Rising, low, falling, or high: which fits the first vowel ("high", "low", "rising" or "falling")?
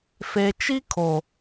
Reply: low